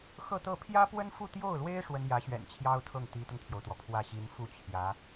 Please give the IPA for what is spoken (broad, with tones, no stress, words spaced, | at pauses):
xɤ˥˧t̪ɤ˥˩ pʰjä˥pwə˥nfu˥˧ t̪jo˥˩ʊ̯lwe˥ɪ̯ ʂwə˥n jä˧˥ɕɥɛ̰˨˩nt͡ɕʰjɑ˥ʊ̯t̪ʰɤ˥˩ŋ t̪i˧˥t̪ʊ˧ŋt̪ʰjo˩ʊ̯t̪wɔ˩ pʰwä˥˩ɕi˧˥n fu˥˩t͡ɕʰjä˧˥